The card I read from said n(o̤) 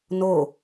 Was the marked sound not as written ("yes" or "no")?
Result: yes